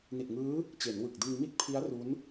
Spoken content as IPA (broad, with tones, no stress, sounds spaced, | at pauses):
n i˨˩ t̚ ŋ ɯː˦˥ | t͡ɕ e˩˦ n w ɯ˨˩ k̚ d ɯ˧ ŋ m i˥˩ t̚ pʰ i˦˥ a̯ r u˦˥ n